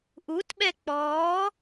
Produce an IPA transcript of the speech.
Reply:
ʔutɓɛ k͡pɔː

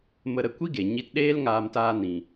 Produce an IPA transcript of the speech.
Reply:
mə˧ ɾə˧ kʷi˦ɡe˨ɲi˧t ɗeː˦lŋaː˧mtaː˧ nĩ˨

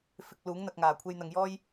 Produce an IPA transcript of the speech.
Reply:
fɪ˨k̚ luː˨˥ŋn̪ɐ˧k̚ŋaː˨˩ kʷʰe˧jn̪ɐ˨˧ŋjɔː˥j

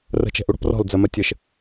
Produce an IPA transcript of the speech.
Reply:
rə̤t͡ʃɛ̤ʔu ɽɔ̤prɔ̤ld͡zɜmɜ tʲəʃ

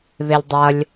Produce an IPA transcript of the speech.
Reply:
βelʲdˤʌlʲ

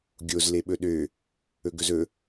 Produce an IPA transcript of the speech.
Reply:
ɡʲoz leɓɵɗø | ɵɡɵzɵ

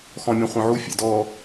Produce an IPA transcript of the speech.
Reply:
xɔ̃mʲœ̃χʷœ̃ʕu fʲɛ̰dɔ

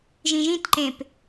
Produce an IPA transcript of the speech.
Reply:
ʒĩʒĩtǃẽp

